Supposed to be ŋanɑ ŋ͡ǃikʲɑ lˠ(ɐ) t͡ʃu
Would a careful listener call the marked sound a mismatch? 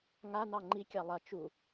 no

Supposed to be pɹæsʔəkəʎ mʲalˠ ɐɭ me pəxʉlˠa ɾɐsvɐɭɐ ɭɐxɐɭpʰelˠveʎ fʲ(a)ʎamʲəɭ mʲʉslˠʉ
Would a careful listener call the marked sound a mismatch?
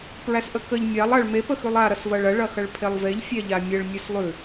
yes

